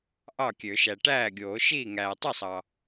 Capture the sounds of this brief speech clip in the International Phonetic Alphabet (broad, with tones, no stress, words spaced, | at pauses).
ʔɑ˥˩kʲø˨˩˦ʃæ˨ ʈæː˥˩ɡʲoː˨˩˦ʃiː˥˩ŋæː˨ tˤɯ˥˩ sˤɑ˨